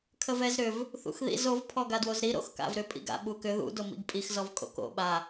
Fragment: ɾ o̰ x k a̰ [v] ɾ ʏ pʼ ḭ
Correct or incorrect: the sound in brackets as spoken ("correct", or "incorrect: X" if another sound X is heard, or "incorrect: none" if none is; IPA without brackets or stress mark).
correct